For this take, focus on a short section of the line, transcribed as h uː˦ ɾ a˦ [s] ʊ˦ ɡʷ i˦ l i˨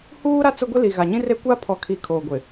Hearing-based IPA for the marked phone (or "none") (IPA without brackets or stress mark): t͡s